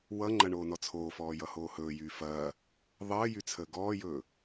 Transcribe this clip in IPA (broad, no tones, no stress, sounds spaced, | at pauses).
w ʌ ŋ͡ǃ ɐ ɳ oː n ɔ t͡sʰ oː f ɔː j ʌ h oː h ɵː j yː f ɐː | ðˤ əː j y t͡sʰ əː ɡ ɔː j ɵː